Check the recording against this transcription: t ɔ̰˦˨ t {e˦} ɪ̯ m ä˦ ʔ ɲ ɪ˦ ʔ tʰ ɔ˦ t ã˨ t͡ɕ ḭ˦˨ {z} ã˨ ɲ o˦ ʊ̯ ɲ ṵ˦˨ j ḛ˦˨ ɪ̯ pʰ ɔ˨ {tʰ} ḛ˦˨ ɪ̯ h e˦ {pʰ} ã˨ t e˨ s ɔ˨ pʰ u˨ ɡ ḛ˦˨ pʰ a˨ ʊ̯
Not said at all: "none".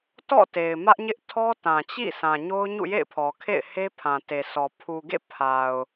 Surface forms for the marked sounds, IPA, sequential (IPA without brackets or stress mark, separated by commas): e˨, s, kʰ, pʰ